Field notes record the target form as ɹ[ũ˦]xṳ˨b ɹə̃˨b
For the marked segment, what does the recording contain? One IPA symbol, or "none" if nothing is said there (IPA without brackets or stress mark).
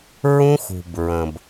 ũ˦